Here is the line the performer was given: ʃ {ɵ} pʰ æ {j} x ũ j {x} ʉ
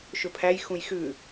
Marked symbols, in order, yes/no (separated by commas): yes, yes, yes